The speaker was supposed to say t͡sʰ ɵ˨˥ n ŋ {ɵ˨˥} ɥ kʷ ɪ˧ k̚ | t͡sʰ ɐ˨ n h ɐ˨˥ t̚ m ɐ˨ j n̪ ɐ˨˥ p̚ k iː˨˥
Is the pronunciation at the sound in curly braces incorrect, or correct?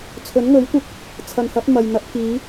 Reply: correct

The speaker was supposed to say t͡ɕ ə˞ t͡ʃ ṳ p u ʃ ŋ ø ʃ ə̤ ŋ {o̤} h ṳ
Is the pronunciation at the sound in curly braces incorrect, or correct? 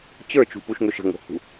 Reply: correct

